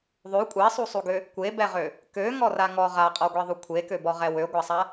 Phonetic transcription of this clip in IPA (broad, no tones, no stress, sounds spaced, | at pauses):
ðˤ ʉ kʷʼ ɛ sˤ u sˤ u ɡ ø | kʷ e b ɛ ʁ ø | k ø ŋ ɔ r a ŋ ɔ ʁ a qʼ ɔ ɡʷ ɛ ðˤ u kʷʰ e k ø b ɔ ʁ ɛ w ø ɡʷ a sˤ a